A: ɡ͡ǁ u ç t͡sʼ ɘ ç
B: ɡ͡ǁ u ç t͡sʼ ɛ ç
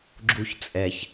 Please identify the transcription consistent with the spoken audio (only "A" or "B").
B